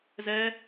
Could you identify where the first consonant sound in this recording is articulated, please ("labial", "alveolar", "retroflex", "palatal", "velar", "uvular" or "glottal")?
alveolar